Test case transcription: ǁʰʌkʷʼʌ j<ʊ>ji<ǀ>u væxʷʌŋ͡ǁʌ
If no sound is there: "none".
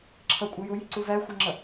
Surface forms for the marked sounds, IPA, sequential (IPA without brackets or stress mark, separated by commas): ʊ, ǀ